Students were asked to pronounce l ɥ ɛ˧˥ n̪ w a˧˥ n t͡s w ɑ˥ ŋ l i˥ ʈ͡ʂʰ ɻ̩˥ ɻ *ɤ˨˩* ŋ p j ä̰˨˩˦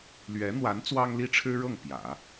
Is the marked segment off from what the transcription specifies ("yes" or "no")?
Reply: yes